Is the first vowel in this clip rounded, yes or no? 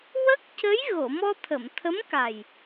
no